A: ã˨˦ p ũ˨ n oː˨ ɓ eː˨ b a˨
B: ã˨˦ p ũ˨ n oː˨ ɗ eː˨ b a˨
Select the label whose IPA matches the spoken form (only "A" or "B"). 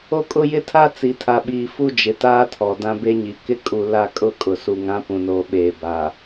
A